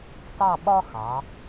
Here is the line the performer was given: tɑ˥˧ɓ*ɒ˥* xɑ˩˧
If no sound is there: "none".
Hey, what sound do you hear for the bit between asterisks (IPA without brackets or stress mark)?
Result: ɒ˥